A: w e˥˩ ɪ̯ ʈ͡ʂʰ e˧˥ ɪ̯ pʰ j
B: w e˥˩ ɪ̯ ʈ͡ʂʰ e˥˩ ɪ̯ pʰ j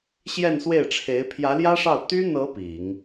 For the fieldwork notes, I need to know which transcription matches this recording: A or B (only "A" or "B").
A